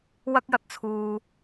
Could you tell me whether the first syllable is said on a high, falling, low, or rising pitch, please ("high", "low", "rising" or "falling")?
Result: high